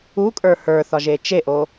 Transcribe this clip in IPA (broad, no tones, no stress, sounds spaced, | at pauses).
u kʼ ə˞ h ə˞ θ ɒ ʒ e t͡ʃ e ʔ o